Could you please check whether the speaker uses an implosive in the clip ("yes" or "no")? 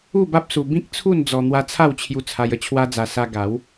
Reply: no